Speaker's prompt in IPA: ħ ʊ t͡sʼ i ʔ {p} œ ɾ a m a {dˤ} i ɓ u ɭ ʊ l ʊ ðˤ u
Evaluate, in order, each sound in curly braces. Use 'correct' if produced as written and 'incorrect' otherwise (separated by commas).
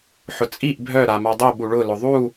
incorrect, correct